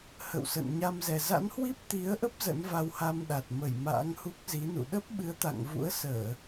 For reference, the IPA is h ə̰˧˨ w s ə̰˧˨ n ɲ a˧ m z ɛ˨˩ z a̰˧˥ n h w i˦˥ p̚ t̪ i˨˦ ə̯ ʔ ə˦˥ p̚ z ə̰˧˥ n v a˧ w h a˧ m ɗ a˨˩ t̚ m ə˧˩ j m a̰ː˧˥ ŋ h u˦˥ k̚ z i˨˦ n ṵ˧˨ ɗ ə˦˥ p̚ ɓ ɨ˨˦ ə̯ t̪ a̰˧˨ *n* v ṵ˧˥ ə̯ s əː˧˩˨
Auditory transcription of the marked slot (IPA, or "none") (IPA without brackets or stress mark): ŋ